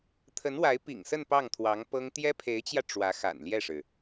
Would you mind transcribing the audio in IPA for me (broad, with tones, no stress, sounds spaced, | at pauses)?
t̪ʰ ə˧˥ n w a˧˥ ɪ̯ p ḭ˨˩ ŋ s ə˥˧ n p ɑ˥˩ ŋ t̪ʰ w ɑ˧˥ ŋ p ɤ˥ ŋ t̪ j ɛ˥ pʰ e˧˥ ɪ̯ t͡ɕ j ä˧ ʈ͡ʂ w ä˧˥ x a̰˨˩ n l j ɛ˥˩ ʂ ɻ̩˩